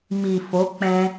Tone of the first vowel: low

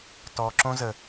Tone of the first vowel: low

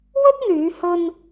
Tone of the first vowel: high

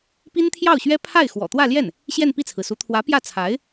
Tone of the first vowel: high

